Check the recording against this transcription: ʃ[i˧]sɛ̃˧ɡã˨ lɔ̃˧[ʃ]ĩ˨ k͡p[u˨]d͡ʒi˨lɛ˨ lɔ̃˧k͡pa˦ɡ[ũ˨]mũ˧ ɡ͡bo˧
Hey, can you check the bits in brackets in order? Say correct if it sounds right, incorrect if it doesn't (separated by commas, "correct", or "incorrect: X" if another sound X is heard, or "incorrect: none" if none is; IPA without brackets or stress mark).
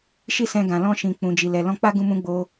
incorrect: i˦, correct, incorrect: ũ˨, incorrect: ũ˧